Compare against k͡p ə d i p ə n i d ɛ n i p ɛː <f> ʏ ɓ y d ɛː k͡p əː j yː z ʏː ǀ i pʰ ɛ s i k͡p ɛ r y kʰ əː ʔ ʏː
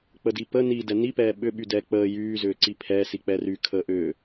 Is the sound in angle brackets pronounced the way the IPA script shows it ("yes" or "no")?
no